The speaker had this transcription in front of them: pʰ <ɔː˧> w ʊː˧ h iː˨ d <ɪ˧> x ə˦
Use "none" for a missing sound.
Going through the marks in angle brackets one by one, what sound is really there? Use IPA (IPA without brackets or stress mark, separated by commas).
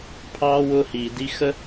ɑː˧, i˧